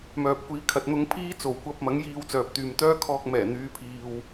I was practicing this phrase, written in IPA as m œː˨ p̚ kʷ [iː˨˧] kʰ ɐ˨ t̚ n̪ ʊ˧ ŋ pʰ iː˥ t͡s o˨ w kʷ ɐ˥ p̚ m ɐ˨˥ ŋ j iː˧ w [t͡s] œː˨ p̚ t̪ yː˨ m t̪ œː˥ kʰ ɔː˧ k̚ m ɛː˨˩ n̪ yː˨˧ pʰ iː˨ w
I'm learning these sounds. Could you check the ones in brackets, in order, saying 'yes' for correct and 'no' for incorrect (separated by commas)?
yes, yes